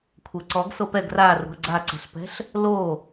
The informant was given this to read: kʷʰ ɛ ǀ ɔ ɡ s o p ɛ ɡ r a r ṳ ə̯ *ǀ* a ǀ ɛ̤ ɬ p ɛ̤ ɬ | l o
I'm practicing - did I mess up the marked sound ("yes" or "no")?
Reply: yes